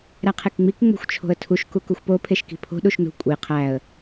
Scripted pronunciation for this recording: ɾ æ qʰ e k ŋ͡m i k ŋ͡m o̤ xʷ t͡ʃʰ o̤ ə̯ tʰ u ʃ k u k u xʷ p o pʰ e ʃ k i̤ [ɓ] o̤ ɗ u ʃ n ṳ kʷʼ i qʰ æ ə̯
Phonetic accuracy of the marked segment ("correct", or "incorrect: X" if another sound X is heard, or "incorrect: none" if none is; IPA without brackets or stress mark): incorrect: pʰ